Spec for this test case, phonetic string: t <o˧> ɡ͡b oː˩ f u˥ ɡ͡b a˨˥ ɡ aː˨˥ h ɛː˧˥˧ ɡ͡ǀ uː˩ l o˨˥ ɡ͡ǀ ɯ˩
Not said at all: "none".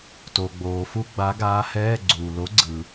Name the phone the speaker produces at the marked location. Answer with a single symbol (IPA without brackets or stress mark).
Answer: o˩